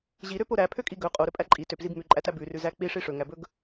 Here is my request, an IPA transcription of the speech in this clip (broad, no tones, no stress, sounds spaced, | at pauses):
ʑ i ɾ ø p o ɾ æ pʰ ø kʼ i ɡ ɵ qʼ o ɾ ɵ pʼ æ ǃʼ i t ø p z i b m ʉ ǃʼ æ t æ b ʉ r ʉ z æ k͡p i ʂ i ʂ ɵ ŋ æ b ɵ ɡ